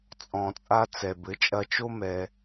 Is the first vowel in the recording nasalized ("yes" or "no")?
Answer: yes